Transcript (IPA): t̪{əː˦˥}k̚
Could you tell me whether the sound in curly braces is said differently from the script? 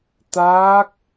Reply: yes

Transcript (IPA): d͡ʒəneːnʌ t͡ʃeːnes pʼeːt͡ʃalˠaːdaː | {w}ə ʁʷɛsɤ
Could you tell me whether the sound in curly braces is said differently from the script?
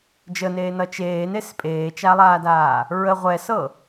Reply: yes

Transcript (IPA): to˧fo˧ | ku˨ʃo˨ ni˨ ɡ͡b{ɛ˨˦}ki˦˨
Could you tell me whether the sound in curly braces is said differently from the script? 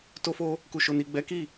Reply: no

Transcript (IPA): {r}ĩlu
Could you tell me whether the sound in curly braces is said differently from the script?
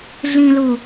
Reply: yes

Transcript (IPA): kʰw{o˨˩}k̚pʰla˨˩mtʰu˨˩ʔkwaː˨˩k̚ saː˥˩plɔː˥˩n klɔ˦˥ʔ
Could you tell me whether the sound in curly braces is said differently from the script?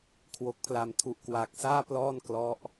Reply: no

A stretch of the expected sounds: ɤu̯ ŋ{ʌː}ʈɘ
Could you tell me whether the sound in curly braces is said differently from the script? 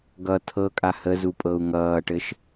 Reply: no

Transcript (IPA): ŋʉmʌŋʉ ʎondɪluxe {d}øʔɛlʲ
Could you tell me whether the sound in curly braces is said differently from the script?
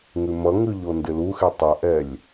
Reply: yes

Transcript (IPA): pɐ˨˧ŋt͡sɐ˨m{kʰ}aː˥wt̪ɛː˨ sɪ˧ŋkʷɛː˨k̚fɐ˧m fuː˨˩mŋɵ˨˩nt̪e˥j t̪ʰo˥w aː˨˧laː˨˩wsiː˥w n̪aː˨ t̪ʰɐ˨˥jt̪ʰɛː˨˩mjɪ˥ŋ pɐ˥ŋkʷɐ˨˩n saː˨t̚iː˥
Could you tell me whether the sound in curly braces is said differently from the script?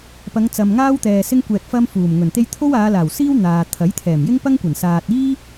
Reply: yes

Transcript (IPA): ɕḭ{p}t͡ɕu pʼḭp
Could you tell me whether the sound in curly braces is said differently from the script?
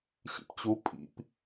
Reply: no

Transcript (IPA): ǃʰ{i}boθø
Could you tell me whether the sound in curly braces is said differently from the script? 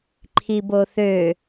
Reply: no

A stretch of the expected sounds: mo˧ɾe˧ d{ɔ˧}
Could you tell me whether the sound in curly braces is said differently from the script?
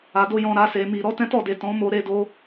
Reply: yes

